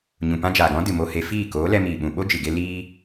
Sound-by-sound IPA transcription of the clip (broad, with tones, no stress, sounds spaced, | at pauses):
ɲ ũ˨ p ã˧ d͡ʒ aː˨ ɡ ɔ̃˨˦ d ɨ˨ m o˧ h e˧ f iː˦˨ k oː˨˦ l ɛ˧ m iː˨ ɓ ũ˨ ɓ o˦ d͡ʒ ɨ˨ ɡ e˧ l iː˦